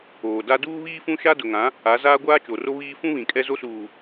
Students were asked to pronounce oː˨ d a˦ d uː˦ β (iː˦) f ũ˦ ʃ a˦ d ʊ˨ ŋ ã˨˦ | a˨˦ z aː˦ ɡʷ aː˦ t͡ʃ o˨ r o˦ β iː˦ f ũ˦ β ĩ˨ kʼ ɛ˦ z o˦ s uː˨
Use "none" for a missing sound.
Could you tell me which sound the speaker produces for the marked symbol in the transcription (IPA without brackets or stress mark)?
iː˦